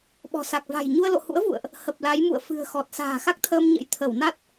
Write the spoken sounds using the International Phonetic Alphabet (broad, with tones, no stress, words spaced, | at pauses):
ɓɔ̤˨˩sa˨˩k̚ va̤˨˩jɲu˧ə̯ lo̰˧˨hṵ˧˥ə̯vṵ˧˨ə̯ʔ | hə˨˩p̚la˨˦jmṵ˧˨ə̯ fɨ̤˨˩ə̯xɔ˨˩t̚ sa̤ː˨˩xa˦˥k̚t̪ʰəː˧m ɲə̰˧˥j t̪ʰə˧˩wna˦˥t̚